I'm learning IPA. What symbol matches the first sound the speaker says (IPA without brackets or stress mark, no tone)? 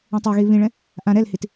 ɛ̃